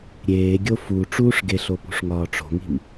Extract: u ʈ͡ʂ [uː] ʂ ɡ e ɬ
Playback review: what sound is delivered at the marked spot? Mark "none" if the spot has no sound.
uː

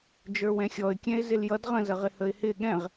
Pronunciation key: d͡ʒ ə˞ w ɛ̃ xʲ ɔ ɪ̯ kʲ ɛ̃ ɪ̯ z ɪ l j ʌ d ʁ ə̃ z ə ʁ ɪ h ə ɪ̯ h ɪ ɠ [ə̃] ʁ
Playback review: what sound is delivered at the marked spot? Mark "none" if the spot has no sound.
ɛ̃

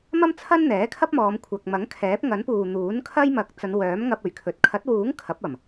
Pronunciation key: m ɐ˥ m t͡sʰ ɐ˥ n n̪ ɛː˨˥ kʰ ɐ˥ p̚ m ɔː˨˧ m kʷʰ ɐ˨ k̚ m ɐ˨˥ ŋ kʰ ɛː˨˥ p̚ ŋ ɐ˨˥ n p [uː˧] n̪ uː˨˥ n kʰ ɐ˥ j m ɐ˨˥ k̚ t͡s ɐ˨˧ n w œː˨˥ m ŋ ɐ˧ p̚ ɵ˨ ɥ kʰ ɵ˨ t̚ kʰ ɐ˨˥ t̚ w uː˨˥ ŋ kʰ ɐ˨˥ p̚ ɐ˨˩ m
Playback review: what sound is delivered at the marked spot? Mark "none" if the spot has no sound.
uː˨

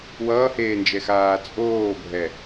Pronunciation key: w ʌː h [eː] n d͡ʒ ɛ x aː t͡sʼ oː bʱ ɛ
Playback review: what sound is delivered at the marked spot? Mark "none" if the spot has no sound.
eː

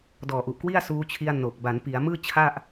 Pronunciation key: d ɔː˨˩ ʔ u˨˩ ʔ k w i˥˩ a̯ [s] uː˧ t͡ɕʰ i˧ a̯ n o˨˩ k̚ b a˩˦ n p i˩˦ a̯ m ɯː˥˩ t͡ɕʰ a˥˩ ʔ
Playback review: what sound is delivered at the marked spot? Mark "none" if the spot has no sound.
s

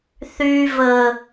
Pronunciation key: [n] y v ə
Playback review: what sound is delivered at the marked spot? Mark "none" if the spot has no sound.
θ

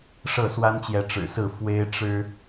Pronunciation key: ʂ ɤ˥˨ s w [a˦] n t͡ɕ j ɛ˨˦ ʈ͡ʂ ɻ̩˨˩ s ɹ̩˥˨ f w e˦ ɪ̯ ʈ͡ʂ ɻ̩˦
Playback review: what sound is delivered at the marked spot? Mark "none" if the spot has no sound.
a˦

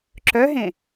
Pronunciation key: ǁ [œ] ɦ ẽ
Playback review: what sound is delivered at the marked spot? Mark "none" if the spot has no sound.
œ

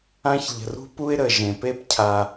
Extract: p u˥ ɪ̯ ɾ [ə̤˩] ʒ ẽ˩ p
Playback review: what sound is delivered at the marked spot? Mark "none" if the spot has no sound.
ə˩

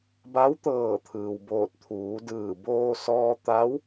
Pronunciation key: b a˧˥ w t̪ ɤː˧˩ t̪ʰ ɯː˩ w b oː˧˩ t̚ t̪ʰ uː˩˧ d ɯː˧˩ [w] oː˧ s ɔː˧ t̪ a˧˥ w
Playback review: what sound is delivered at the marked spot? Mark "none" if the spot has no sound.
b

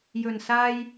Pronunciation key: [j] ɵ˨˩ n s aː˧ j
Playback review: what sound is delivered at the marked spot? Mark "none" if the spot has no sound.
j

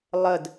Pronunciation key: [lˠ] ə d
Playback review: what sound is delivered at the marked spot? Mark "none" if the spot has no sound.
lˠ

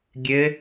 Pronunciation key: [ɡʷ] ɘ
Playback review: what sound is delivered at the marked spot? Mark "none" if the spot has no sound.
ɡʲ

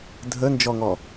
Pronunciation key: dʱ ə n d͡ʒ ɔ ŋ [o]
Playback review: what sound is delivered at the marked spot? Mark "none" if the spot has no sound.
ɔ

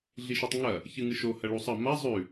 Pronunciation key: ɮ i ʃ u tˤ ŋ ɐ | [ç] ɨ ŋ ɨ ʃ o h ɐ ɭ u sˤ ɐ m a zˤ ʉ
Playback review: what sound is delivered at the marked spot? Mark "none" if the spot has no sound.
ç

